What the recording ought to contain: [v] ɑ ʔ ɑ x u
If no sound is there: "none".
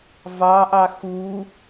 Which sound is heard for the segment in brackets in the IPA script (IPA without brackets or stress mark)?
v